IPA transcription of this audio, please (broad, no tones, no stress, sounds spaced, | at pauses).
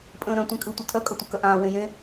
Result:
pʼ ə̃ː ɾ œ̃ tʷ ẽ kʼ ɯ tʷ ʌ tʰ œ kʼ ʌ tʷ ɯ k œ ʔ ãː w ẽ j ẽ